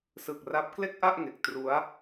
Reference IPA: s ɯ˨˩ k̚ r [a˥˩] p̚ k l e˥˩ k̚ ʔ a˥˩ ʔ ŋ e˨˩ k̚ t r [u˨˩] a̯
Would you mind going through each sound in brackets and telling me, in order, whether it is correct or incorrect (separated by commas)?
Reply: incorrect, incorrect